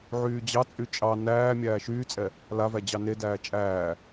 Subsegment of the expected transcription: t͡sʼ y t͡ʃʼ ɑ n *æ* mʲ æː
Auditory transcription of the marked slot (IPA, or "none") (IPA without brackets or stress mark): æː